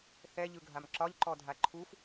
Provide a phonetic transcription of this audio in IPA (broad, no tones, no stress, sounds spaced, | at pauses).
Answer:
θ ɛ ʎ ɯ ɡʱ a m ǁ ɒ ʎ ǃ ɔ dʱ a ǃʰ u f